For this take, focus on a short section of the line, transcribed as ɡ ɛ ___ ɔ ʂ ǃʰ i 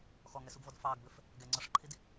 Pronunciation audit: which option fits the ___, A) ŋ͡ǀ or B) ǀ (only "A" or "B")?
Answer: A